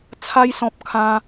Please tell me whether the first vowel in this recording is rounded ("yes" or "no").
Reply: no